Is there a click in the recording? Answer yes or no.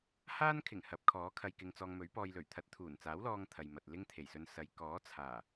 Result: no